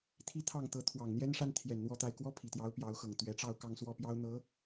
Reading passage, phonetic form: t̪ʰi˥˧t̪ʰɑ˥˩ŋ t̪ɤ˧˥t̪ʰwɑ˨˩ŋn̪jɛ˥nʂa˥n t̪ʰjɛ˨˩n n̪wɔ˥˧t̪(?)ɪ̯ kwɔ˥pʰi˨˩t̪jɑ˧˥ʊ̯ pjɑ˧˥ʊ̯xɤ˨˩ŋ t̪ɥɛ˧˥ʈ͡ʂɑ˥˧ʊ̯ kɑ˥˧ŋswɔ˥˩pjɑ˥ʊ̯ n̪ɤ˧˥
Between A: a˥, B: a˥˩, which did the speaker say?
B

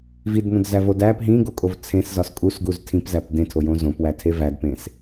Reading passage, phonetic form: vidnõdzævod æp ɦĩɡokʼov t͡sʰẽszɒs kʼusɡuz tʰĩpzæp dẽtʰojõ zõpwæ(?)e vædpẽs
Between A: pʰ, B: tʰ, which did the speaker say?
B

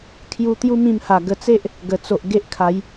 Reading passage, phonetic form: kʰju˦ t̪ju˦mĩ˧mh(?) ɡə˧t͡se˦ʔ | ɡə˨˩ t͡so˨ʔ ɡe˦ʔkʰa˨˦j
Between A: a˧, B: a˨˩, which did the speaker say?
B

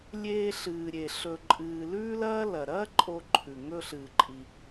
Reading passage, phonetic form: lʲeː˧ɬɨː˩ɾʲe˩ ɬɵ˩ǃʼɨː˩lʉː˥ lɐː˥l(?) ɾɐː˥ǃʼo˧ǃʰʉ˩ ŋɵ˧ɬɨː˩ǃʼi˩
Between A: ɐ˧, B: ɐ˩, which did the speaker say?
B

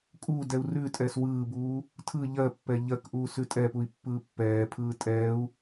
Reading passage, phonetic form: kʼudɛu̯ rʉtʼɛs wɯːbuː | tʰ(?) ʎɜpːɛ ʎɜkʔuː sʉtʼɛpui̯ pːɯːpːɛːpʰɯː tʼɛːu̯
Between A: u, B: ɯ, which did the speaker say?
B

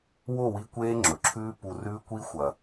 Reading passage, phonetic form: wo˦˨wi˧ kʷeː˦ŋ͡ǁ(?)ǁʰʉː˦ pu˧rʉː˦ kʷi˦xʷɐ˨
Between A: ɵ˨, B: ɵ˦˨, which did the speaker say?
A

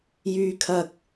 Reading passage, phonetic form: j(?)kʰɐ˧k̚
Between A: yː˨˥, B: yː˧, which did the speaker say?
B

